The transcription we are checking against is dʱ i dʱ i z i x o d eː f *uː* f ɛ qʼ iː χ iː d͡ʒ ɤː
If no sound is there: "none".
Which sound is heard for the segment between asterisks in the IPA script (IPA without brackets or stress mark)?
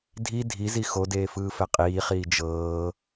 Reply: ɯː